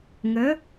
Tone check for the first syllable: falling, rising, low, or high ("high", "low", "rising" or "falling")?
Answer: rising